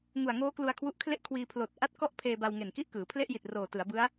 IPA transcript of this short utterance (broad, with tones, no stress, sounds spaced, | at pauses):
ŋ u˨˩ a̯ ŋ oː˦˥ k l u˧ a̯ kʰ w u˦˥ ʔ kʰ l e˥˩ ʔ kʰ w iː˧ pʰ l oː˨˩ t̚ ʔ a˥˩ t̚ k ɔ˥˩ ʔ pʰ eː˧ b a˧ w ŋ e˨˩ n k i˥˩ ʔ k ɯː˩˦ pʰ l e˥˩ ʔ j i˨˩ t̚ r oː˨˩ t ɯ˩˦ a̯ b ɯ˦˥ a̯